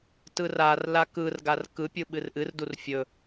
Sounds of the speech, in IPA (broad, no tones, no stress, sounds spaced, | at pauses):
t ɯ r a r l a k ɯ r ɡ a r k ɯ pʲ ɯ ɓ ɨ r ʔ ɨ r d u r fʲ ɵ